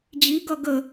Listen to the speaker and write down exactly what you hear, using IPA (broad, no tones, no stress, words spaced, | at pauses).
d͡ʑiɡʌ ɡə